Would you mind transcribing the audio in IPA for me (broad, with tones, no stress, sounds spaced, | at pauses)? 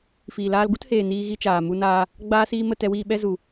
f iː˨ l aː˧ l ɡ u˦ t h eː˨ n iː˧ ɣ i˧ t͡ʃ aː˨ m u˧ n aː˧ | ɡ͡b aː˧ s iː˧ m ə˦˨ t ɛ˧ w iː˧ ɓ ɛ˧ z u˨